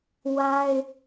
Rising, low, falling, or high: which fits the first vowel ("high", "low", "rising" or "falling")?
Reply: high